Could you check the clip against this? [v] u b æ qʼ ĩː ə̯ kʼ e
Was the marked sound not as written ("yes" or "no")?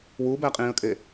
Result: yes